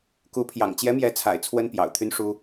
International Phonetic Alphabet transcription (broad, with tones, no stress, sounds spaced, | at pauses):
k u˧˥ pʰ j ɑ̰˨˩ ŋ t͡ɕ j ɛ˧˥ m j ɛ˧˥ t͡sʰ a̰˨˩ ɪ̯ t͡sʰ w ə˥ n p j ɑ̰˨˩ ʊ̯ t̪ʰ y˥ n ʂ u˥